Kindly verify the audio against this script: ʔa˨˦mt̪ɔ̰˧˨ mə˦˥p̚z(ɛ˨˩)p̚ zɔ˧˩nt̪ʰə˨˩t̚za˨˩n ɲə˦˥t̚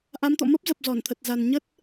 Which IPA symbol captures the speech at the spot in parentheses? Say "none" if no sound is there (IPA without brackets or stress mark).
ə˨˩